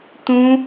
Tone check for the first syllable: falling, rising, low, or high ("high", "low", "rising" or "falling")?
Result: high